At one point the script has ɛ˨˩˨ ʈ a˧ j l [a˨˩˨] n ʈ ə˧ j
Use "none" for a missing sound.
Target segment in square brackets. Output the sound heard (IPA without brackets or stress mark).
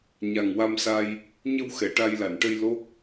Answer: a˨˩˨